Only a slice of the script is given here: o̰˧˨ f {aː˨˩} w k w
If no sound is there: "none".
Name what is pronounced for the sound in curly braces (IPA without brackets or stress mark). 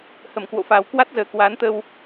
aː˨˩